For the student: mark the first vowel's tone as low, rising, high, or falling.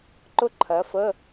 high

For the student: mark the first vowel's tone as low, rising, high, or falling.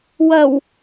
low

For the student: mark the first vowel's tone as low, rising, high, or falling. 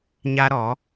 high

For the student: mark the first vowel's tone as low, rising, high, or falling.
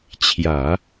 low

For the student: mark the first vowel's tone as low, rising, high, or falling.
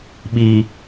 low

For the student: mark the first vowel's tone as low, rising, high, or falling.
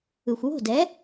low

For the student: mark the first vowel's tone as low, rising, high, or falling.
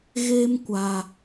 high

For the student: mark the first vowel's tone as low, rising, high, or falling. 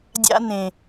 high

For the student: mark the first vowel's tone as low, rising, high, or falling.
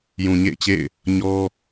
low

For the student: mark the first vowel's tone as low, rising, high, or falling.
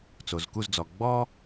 low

